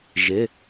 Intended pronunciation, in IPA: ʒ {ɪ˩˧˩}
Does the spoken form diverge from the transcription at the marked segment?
no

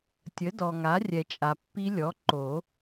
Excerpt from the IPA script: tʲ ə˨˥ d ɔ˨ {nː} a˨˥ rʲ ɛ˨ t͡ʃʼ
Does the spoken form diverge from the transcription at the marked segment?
yes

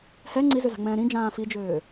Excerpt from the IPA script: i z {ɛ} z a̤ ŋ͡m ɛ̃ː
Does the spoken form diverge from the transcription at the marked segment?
yes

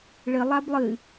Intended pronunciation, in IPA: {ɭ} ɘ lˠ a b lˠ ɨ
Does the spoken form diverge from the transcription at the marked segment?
no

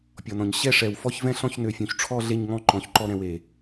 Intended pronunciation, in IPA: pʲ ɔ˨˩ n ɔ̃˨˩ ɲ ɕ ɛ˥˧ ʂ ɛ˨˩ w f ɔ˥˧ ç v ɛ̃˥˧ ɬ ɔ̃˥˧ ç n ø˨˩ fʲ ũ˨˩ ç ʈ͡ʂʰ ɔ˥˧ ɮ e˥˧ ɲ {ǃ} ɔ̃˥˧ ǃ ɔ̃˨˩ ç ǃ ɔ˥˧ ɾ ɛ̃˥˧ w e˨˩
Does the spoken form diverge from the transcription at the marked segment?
yes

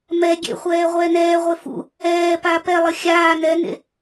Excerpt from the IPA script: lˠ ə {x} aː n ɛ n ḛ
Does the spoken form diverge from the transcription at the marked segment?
yes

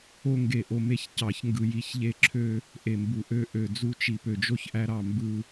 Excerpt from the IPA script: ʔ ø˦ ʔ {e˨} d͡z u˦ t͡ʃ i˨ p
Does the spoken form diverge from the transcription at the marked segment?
yes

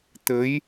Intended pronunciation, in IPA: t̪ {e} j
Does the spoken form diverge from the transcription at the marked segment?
yes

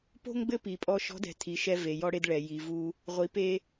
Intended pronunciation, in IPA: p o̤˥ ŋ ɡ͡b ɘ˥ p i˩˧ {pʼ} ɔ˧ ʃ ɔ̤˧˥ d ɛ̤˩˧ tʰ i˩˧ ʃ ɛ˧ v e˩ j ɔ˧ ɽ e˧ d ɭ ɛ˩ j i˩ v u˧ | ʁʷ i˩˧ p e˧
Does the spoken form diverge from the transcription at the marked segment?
no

